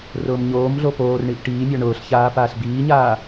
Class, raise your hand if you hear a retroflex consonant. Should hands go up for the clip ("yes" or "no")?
yes